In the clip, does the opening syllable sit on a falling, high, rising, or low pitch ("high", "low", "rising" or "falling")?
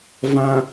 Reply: low